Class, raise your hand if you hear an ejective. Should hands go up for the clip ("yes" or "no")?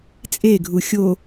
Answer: yes